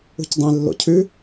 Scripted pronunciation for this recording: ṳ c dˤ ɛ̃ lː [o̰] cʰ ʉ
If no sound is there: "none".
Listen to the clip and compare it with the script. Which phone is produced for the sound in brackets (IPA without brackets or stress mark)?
o̰